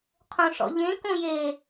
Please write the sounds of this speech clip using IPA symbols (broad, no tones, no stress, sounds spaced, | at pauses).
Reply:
qʰ õ ʂ ɔ̰ ʎ ẽ k õ j e